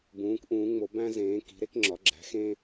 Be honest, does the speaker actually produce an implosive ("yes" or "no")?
no